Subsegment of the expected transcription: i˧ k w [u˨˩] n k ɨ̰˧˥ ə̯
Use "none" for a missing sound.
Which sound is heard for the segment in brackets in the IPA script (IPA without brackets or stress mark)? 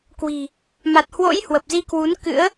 u˨˦